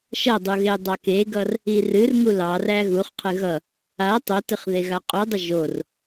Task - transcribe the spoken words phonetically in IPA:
ʃʌdˤu ɣedˤɑkeɡʌr | irɨrŋu lɑræ ɣuχqʰɨ ɣʌ | a tˤotɨχ ðeɣaqʼudˤə ʒor

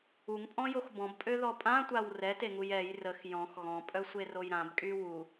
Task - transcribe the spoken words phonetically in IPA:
uŋpʼɔ̃jox bɔ̃bpʼøðɔ pʼãtʷaw rɛteŋuj ɛj rəx jɔ̃x ɣɔ̃pʼœsʷeroj ɾãbkʼy wu

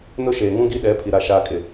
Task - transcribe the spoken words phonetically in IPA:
nʊ˦ʃeː˨ ŋũ˦ɡi˦ɗɛ˨˦pʰi˨ ɾa˨ʃaː˨kʼɪ˨

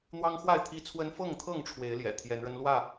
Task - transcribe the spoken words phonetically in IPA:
n̪wɑ˦ŋxwa˥˨ɪ̯t̪ʰi˦t͡sʰwə˦n fɤ˥˨ŋt̪ʰɤ˥˨ŋ ʈ͡ʂʰwe˨˦ɪ̯ ljɛ̰˨˩t̪ʰjɛ˨˦nɻə˦nlwä˥˨

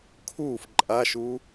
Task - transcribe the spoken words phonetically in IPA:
kʰuːf ǃʼaʃu

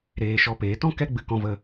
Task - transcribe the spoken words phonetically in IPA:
ɾeː˧ʃɔ˧peː˨˦ tɔ̃˦ kɛ˦ɡ͡bɨ˧ kɔ̃˧və˧

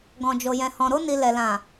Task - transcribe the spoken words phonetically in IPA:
ɡɔ̃˨d͡ʒo˨jɛ̃˨ hɔ̃˨ɾo˧ni˨ lɛ˨lã˨

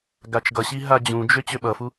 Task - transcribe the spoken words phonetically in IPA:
ɡat͡ʃɡʌɕi ɦad͡ʑũd͡ʒø t͡ɕøɓʌfu

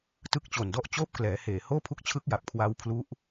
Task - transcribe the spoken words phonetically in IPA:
tɯ˦˥k̚t͡ɕo˨˩ndɔ˥˩ʔt͡ɕoː˥˩p̚ klɛː˩˦heː˨˩ hoː˥˩pʰu˦˥k̚t͡ɕʰɯ˦˥k̚ja˨˩p̚ kʰwa˦˥wpʰlu˦˥ʔ

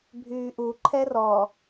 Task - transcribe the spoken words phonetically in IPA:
bʱyːʔu ǃʰɛrɔ

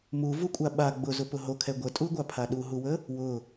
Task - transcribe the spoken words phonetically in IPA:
muvukʷʼa ɓa ɡ͡bʊzʊpʊ ɦokʰɛ ɡʷətʼuɡʷapʰa ɗuɦuwə | wʊ

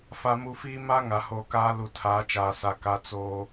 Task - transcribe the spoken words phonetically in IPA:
fa˨mu˨fiː˦ ma˦ ŋa˨hoː˨kaː˦ lu˨tʰaː˨˦t͡ʃaː˨sa˨ ka˦t͡soː˦

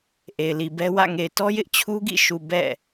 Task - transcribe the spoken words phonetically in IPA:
ʔe˨ɪ̯li˨bɛ˦ wä̰˦˨ ŋe˨ɪ̯tɔ˦jɪ˦ʔ t͡ɕʰu˦ɡḭ˦˨ʃu˨ bɛ̰˦˨

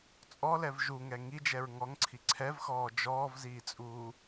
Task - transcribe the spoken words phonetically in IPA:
t͡sʼɔlɛv ʒuŋɛ ŋid͡ʒɛɹ ŋɔŋǀʰi ǀʰɛvxɔː d͡ʒɔːvziːt͡sʼuː

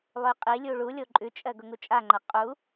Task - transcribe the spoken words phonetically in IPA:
lˠʉqʼilʲu ɭulʲo ǃʼʉt͡ʃʼɜ ɡʊŋut͡ʃʼaŋ͡ǃa qʼu

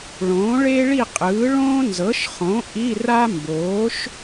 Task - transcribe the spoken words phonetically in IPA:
ɭõː˩˥ɭe˥ɭi˥˨qʼɯː˩˥ ɭõː˥nzɤ˩˥ʃχõ˩˥ ʔi˧˥˧ra˥ mboː˩˥ʃ

